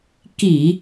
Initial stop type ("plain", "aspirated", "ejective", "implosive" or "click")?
plain